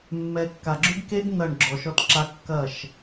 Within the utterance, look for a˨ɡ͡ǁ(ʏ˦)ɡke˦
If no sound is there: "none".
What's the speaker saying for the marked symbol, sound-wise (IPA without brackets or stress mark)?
ʏ˦